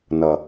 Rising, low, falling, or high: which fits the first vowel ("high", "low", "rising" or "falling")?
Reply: low